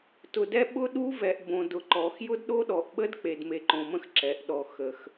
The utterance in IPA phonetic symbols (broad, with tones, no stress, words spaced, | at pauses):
tʊ˨dɛ˦ ɓʊ˦ɗu˦vɛ˨ʔ bõ˨dʊ˨ǃɔ˨x jʊ˦dɗo˦ɗɔ˨ʔɓə˦d k͡pe˨dme˨ǃõ˨mə̃˦x ǁɛ˨ʔ ɗɔ˨xə˨x